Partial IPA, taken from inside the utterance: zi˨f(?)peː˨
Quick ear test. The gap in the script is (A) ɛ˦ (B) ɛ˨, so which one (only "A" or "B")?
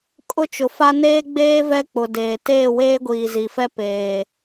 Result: A